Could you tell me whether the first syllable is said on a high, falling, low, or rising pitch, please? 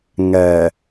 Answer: low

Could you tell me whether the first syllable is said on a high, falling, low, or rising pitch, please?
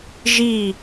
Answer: falling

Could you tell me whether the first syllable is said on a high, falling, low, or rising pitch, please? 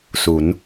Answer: rising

